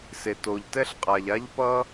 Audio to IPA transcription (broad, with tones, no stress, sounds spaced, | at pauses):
s e˩ t o˩ ʎ t ɛ˥ ɬ qʼ a˩ ʎ a˥ ʎ p ʌ˥